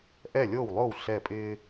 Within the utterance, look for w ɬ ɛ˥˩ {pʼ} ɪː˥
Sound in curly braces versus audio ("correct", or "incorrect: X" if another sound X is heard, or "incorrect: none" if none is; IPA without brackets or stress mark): correct